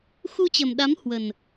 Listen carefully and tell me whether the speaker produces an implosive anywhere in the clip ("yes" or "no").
yes